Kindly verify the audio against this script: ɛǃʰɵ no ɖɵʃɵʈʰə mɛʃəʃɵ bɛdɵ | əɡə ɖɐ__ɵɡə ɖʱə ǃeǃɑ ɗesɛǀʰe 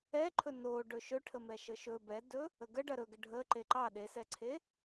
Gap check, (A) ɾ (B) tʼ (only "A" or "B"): A